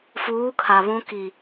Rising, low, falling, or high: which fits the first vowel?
rising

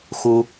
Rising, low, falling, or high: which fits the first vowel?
high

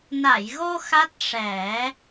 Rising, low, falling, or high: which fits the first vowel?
low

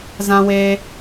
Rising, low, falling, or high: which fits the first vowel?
high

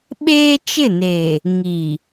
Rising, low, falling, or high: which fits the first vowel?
high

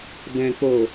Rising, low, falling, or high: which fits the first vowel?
low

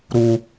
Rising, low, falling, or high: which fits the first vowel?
high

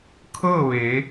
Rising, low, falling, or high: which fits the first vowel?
falling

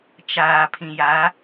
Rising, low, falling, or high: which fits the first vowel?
low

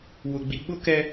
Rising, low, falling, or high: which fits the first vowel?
low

